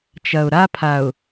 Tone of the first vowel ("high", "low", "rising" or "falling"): low